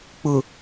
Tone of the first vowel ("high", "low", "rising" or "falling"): low